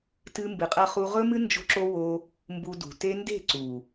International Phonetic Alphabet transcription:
t ɨ˦ m b ɨ˧ qʼ ɐ˦ χ u˦ ʁ ɵ˦ m ɨ˦ n d͡ʒ o̤˦ ǁ o˦ w o˧ | m b u˧ d ṳ˨ t e˦ n d e̤˦˨ ǀ u˨

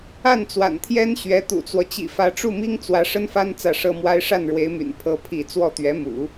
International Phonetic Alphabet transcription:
a˥˩ n t͡s w a̰˨˩ n t̪ʰ j ɛ˥ n ɕ ɥ ɛ˧˥ t̪ ṵ˨˩ t͡s w ɔ˦ t͡ɕ ḭ˨˩ f ä˧˥ ʈ͡ʂ u˥˩ m i˥ ŋ t͡s w ä˧˥ ʂ ə˥ n f a˥ n t͡s ä˥˩ ʂ ɤ˥ m w a˥ ɪ̯ ʂ a˥˩ n ɻ w e˧˥ ɪ̯ m y̰˨˩ n pʰ ɤ˥ pʰ i˥˧ t͡s w ɔ˥˩ t̪ ɥ ɛ˧˥ m ṵ˨˩˦

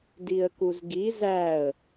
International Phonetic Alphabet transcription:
d i ə̯ k u z ɡ i z æ ə̯

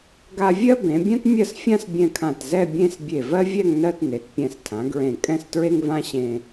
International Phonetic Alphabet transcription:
ɡ a˧ vʲ ɜ˥ b ẽ˩˧ bʲ ã˥ t mʲ ɜ˥˧ s fʲ ã˥ s bʲ ɛ̃˧ kʰ ã˧˩ t z ɛ˥˧ bʲ ẽ˥˧ s bʲ e˧˩ v ɜ˥ vʲ ɛ˥˧ ŋ n ɜ˥˧ t n e˩˧ t pʲ ɛ̃˧˩ s tʰ ã˩˧ ɡ ɹ ẽ˧˩ kʼ ɛ̃˥˧ s t ɹ e˥ ŋ v ã˥ ɕ ẽ˧

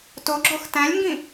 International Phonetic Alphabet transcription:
t o ɡ͡ǁ o x t æ̃ lʲ ŋ ɡ ĩ

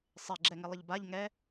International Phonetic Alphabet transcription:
sˤ ɪ ɡ͡ǁ ɛ ŋ ɪ lˠ ɪ ʎ b a ʎ ŋ ɛ

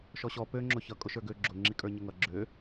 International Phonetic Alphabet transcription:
ʃ ɔ ɕ ɔ p ø ŋ͡ǁ ʊ ç ʌ kʼ ʊ ʃ ə˞ ɡ ø ɡ͡ǁ ʊ ŋ͡ǁ i kʼ ə˞ ɲ ə ŋ ʌ ɡ͡ǁ ø

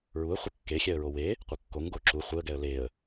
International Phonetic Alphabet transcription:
ɹ u ə̯ χʷ ɪ kː e xʲ ɛ ə̯ ɹ o w e | qʷ ə kː o ŋ ɡ o ǁ u χʷ e ə̯ ɡ ɛ ə̯ l e ə̯

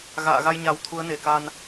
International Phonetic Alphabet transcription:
ɣ a̰ː˧˨ ɣ a˧ j ɲ a˨˩ w t̪ʰ u˨˦ ə̯ n e˨˩ k a˧ n

